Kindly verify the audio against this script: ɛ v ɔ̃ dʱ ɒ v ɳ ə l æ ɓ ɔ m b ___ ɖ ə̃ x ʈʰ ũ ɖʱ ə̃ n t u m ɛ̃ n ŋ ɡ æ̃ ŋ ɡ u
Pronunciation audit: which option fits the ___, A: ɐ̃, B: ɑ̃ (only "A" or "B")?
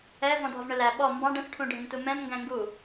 B